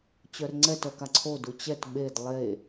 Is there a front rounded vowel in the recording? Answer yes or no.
yes